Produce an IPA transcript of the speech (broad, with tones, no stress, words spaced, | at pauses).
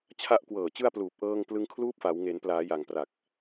t͡ɕʰa˦˥ʔ kwɤː˨˩t͡ɕɯ˧a̯ pluː˨˩p̚ʔɤː˧ŋplɯ˧ŋkʰluː˦˥p̚ fa˩˦wŋe˩˦n plaː˩˦ja˨˩ŋpra˨˩k̚